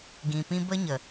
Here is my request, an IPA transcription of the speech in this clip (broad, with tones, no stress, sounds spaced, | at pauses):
ɡ ĩ˨ p ĩ˦ b ə˦ ɲ ə˨